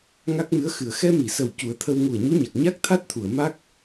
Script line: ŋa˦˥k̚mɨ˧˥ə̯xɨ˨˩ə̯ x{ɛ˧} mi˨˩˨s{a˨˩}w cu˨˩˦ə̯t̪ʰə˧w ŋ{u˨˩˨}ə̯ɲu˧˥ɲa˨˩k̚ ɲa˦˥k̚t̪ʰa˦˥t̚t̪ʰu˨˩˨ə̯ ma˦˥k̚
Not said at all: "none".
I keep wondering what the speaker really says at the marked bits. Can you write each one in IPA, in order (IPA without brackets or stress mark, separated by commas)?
ɛ˧, ə˨˩, u˨˩